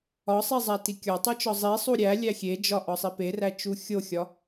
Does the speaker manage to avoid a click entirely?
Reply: yes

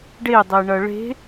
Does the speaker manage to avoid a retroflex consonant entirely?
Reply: no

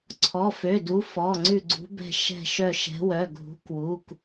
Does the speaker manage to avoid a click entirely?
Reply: no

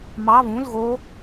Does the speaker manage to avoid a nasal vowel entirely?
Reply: no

